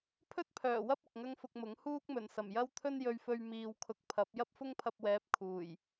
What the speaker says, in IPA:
pʰɵ˥t̚pʰœː˨˩wɐ˥p̚ ʊ˨k̚ŋɐ˥ŋfʊ˧k̚mʊ˨˥ŋ huː˥k̚mɵ˨˩n sɐ˨˩m jɐ˥wt̪ʰɵ˥njɵ˧ɥfɵ˧ɥ miː˨wkʰʊ˨˥k̚ pʰɐ˨˥p̚ jɐ˥p̚fʊ˥ŋpʰɐ˧p̚wɛː˨˥p̚ kʰuː˨˩j

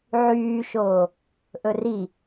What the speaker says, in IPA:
ʕyːʃoː | ʔɵri

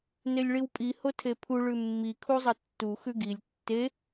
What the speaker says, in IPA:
nelʲɭiwpʼi hotʰepʰu ɭʉmːi kʰuzˤɐtːu xʉɡilʲ tːe

